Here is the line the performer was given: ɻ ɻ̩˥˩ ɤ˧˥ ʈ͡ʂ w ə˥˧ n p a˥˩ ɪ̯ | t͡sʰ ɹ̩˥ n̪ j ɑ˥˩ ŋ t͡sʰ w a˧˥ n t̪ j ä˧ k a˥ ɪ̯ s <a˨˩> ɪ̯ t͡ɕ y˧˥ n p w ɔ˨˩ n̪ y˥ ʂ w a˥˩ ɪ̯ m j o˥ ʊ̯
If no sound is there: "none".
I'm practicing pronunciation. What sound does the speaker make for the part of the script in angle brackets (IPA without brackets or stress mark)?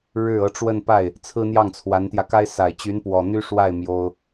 a˨˩